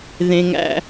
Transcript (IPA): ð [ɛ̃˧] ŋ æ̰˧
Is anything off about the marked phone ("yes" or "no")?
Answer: yes